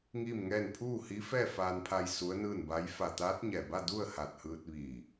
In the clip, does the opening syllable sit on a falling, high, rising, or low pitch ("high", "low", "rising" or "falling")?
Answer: falling